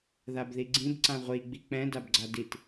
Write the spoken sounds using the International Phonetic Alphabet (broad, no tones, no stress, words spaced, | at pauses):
ðabðiɡ͡ǀĩb ǀãʁʷi ɡ͡bik͡pɛ̃ dabɡ͡ǀadit